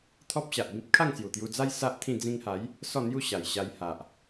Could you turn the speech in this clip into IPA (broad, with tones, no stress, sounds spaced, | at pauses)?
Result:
t̪ʰ ɔ˦ p̚ ɕ a˨ ʔ b ĩ˦ p̚ kʰ a˥˧ ŋ s j u˨˩ t̪ j u˧ d͡z a˦ j s a˦ ʔ t̪ʰ ĩ˥˧ d͡z ĩ˧ ŋ h a˨˦ j | s ɔ˥˧ n̪ j u˥˧ ɕ a˨˩ j ɕ a˧ j h a˨ ʔ